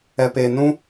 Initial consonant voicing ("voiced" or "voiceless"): voiceless